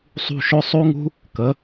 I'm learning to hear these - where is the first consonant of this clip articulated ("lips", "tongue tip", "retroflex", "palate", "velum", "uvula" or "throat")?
tongue tip